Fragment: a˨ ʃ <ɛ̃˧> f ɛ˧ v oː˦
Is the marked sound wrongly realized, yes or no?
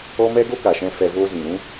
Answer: no